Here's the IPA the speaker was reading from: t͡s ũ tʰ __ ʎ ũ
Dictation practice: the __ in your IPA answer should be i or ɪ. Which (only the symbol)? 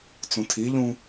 i